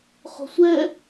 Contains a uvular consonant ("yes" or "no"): yes